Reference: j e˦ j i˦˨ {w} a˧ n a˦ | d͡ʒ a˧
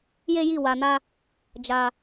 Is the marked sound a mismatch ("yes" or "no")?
no